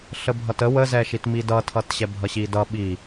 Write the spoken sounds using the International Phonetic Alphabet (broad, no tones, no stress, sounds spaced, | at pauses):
ɬ ə bʱ ʌ t ə w ə z ɛ ʃ i t m i d ʌ tʰ ʌ t ɕ ɛ bʱ ʌ ɕ i d ʌ ɓ i